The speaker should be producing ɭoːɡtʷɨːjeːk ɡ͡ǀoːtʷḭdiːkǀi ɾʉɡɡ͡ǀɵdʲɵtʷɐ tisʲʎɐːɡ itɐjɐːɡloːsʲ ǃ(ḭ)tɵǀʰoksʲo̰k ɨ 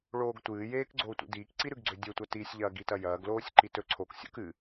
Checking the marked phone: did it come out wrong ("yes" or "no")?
yes